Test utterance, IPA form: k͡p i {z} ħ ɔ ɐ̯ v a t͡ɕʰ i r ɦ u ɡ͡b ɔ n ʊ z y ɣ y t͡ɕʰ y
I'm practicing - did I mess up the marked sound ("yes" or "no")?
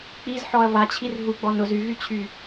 no